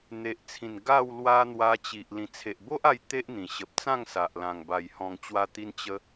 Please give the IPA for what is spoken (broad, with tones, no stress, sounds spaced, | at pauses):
n̪ e˨ ʔ t͡sʰ ĩ˨˩ n ɡ a˥˧ w l w a˦ n̪ w a˧ t͡ɕ i˨ ʔ l ĩ˨˩ t͡sʰ e˨ ʔ b o˦ ʔ a˧ j t̪ e˦ ʔ n̪ ĩ˨˩ ɕ ə˨ p̚ t͡s ã˥˧ ŋ s a˨ ʔ l ã˨˩ ŋ b a˨˩ j h ɔ̃˨˩ ŋ t͡ɕ w a˧ t̪ i˧ n t͡ɕ ə˧